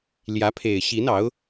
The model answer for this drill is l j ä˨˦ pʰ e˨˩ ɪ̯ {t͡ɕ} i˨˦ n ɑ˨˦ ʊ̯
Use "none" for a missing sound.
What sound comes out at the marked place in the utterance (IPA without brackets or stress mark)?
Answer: ɕ